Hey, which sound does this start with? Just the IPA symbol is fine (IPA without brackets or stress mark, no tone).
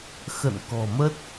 x